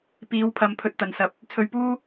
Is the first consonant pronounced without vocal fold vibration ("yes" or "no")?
yes